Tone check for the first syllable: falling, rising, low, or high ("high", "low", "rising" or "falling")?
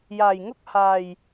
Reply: low